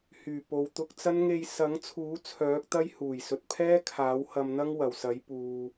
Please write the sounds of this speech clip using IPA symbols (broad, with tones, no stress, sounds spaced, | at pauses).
h yː˨˩ p o˨ w t̪ ʊ˧ k̚ t͡s ɐ˥ n ŋ e˧ j s ɐ˨˥ ŋ t͡sʰ uː˨˥ t͡sʰ œː˨˥ k̚ t̪ ɐ˥ j h uː˨˩ j s ɵ˨ t̚ pʰ ɛː˥ kʰ aː˨˥ w h ɐ˧ m n̪ ɐ˥ ŋ w ɐ˨˩ w s ɐ˨˥ j p uː˨